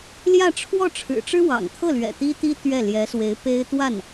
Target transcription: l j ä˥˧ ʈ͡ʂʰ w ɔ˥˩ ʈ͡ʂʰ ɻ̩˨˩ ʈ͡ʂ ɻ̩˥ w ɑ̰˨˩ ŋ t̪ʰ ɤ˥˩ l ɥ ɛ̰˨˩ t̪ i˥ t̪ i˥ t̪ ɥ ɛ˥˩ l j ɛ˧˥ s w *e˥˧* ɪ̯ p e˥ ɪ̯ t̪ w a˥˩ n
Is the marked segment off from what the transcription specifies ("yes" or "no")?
yes